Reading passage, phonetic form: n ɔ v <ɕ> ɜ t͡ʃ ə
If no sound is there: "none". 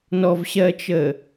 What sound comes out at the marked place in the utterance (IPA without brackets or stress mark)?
ɕ